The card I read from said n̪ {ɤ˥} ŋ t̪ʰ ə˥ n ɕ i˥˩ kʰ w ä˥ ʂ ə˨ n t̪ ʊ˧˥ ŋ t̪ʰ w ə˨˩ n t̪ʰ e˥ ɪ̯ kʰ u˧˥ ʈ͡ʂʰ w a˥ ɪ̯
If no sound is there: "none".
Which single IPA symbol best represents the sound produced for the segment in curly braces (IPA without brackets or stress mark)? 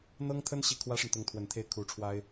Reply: ɤ˥